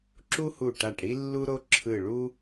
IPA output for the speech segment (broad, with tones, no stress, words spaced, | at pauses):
ǁu˦hu˧˩ʈa˧˩ʈ ɽi˦lːu˦ɾo˦ ǁʰɯ˧˩ɭu˦